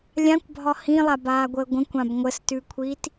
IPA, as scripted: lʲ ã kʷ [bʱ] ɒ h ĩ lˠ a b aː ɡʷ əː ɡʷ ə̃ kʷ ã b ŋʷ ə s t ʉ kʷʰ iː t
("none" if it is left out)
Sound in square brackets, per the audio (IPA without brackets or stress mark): bʱ